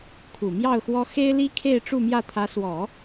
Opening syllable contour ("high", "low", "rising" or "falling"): low